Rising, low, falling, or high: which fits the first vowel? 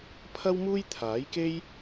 high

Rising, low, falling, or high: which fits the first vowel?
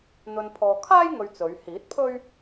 low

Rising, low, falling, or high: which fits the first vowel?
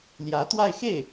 rising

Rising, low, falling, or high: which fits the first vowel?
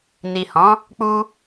low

